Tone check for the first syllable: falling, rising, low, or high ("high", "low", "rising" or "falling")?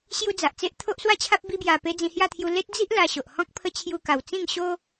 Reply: high